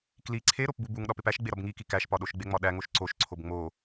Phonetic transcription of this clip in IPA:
k l i ǀʰ e ɾ o p b u b u ŋ ɗ ɒ p e p æ ʃ ɡ͡b e ɾ ɒ b ŋ i k i k æ ʃ p ɒ ɗ o ʃ ɡ͡b e ŋ͡m ɒ ɗ æ ŋ o ʃ ǀ o ʃ ǀʰ o b ŋ͡m o

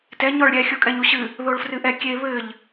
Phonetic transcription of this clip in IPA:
t ɛ ɲ ɔ ɭ ɾʲ ɛ xʲ o kʼ ɛ ɲ u ɕ ɨ | ð o ɭ f r ɨ ʔ ɛ kʲ e β ɘ ʎ

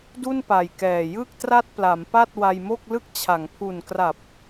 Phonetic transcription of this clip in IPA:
d u˥˩ n p a˨˩ j k ɛː˨˩ j ɯ˥˩ k̚ t r a˥˩ t̚ p l a˩˦ m p a˥˩ t̚ w a˧ j m o˥˩ k̚ l ɯ˥˩ k̚ t͡ɕʰ a˩˦ ŋ pʰ u˨˩ n k r a˨˩ p̚

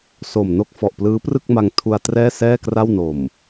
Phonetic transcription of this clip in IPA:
s o˨˩ m n o˦˥ k̚ f ɔ˨˩ ʔ p l ɯː˦˥ p r ɯ˥˩ k̚ m a˧ ŋ tʰ u˧ a̯ t r ɛː˥˩ s ɛː˥˩ k r a˥˩ w n o˨˩ m

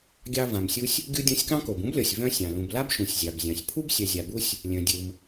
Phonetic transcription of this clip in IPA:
ɡʲ ɑ˧ v ã˩ m sʲ u˧ sʲ | ɡʲ u˧ dʲ ɔ̃˧ sʲ k ɑ̃˥ k o˩ b ũ˥ b lʲ ɔ˩ sʲ v œ̃˧ sʲ ɑ̃˩ l ũ˩ b l a˥ b ʃ ũ˩ sʲ zʲ ɑ˩ b zʲ ɑ̃˩ sʲ pʰ u˥ b sʲ œ˩ zʲ a˩ b u˧ sʲ | lʲ œ̃˩ dʲ ɯ˩ m

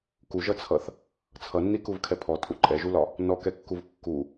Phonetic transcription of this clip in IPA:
k u ʒ ʌ t͡sʰ ʌ θ | t͡sʰ ʌ nː i k u v kʰ ɛ pʰ ɔ tʼ u ǃʼ ɛ ʒ u l ɒ | n ɔ k ɛ kː u v kː u

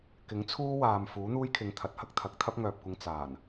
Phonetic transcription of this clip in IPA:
k ɪ˨˥ ŋ t͡sʰ uː˥ w aː˨ m f uː˨˥ n̪ uː˥ j kʰ ɪ˨˧ ŋ t̪ʰ ɐ˨˥ t̚ h ɐ˥ k̚ t̪ʰ ɐ˨˥ k̚ t̪ʰ ɐ˥ p̚ ŋ œː˨ p̚ kʷ ɪ˧ ŋ t͡s aː˨˩ n

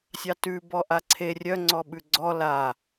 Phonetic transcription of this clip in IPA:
sʲ ɑ t ʉ b ɔ ʔ a ǀʰ e rʲ œ ŋ͡ǀ ɔ ɓ ʉ ɡ͡ǀ ɔ l a

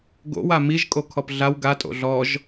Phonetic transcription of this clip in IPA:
ɡ o̰ w a m i ʒ kʼ o kʰ ɔ p ɮ a w ɡ a tʼ o̰ ɮ ɔ ʒ

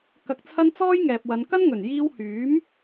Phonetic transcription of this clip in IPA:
k ɐ˨ k̚ t͡sʰ ɐ˧ n t͡s ɔː˥ j ŋ ɛː˨ p̚ w ɐ˨˧ n k ɐ˥ n ŋ ɵ˨˩ n j iː˧ w h yː˨˥ m

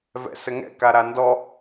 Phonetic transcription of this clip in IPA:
v ɛ̰ s ɘ ŋ ɛ̰ k a ɾ a n d ɔ

